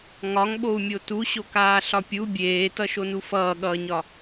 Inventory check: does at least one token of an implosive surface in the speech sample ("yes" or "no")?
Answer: yes